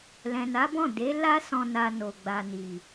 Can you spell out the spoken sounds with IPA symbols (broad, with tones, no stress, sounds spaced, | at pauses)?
l ɛ̃˨ n a˨˦ b ɔ̃˦˨ d e˨˦ l a˦ s ɔ̃˧ n a˧ n o˨ ɡ͡b a˨ n i˨